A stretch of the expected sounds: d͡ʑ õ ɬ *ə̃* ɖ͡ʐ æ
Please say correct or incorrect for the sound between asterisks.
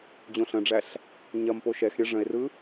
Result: correct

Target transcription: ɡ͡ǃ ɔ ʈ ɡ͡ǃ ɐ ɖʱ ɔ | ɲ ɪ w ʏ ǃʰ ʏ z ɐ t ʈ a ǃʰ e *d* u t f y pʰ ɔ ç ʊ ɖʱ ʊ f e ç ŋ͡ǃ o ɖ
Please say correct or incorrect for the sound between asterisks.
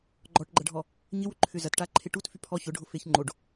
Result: incorrect: ʈ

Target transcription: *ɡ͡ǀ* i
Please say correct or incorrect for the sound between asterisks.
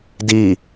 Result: incorrect: d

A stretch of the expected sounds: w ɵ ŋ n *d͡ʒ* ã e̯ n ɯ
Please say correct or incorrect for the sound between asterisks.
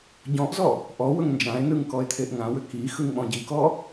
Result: correct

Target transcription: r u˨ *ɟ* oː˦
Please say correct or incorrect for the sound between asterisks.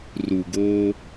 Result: incorrect: ɡ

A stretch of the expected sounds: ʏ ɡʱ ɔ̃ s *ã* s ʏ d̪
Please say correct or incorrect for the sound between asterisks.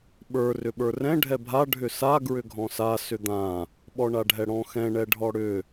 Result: incorrect: a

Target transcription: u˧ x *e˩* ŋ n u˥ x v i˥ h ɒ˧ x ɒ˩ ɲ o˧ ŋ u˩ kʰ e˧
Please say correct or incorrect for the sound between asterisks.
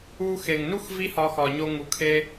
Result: correct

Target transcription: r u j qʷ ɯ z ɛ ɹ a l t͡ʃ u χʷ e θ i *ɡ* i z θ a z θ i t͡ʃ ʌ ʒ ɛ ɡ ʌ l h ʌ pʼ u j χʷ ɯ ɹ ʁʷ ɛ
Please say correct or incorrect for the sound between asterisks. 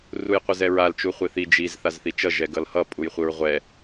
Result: incorrect: d͡ʒ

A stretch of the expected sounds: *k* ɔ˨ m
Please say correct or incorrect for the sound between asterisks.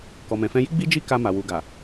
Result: correct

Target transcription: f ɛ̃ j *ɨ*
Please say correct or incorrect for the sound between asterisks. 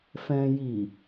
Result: incorrect: i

